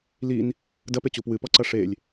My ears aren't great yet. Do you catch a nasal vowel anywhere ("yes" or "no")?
no